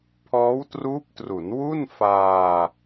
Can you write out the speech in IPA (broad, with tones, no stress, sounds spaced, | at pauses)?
pʰ ɔː˦˥ w t r uː˦˥ p̚ t r u˩˦ n w u˥˩ n f aː˧